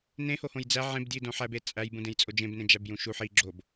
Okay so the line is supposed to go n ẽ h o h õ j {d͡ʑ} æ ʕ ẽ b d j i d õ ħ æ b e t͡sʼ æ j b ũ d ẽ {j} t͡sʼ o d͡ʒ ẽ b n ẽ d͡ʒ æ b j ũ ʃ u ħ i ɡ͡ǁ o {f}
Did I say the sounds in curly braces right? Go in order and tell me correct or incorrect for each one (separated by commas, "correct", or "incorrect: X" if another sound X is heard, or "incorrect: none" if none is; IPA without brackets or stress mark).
incorrect: d͡z, correct, incorrect: b